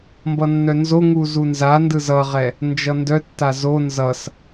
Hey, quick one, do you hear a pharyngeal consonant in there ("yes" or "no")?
no